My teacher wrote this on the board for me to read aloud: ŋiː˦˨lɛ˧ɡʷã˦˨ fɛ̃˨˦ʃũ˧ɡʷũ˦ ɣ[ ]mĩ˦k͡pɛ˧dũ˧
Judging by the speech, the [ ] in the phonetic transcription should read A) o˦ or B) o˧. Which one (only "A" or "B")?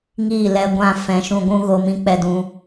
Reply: B